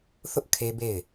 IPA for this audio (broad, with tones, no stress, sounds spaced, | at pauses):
θ ʊ˦ ʔ kʰ e˦ b e˦˨ ɪ̯